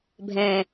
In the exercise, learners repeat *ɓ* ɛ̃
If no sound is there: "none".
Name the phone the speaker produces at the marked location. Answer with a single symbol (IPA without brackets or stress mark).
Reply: bʱ